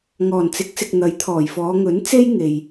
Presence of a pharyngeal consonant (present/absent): absent